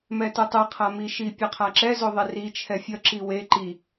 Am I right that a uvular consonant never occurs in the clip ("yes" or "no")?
no